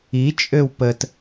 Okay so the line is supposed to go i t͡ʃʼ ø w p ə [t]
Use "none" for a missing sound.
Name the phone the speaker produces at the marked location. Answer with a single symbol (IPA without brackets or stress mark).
t